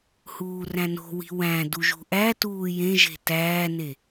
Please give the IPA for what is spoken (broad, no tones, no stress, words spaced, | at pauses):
huːræ̃no̤wi̤ wæ̃ duʒṳʔætuː jẽʒe̤ tæːne